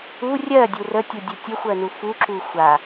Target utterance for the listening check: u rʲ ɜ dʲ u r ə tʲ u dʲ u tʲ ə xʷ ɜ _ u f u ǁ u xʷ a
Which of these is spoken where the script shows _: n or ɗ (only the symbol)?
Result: n